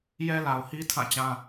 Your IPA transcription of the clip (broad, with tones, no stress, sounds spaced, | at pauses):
j ɛ˦ l a˨ ʊ̯ h i˦ tʰ ã˦˨ t͡ɕ ã˦